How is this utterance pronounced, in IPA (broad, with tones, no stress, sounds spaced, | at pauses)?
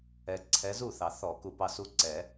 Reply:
ɛ˨ ǀʰ ɛ˨˦ z u˥˩ θ ɑ˨˩˦ θ ɔ˨˩˦ k u˨ p ɑ˥˩ s u˥˩ ǀ ɛ˨˩˦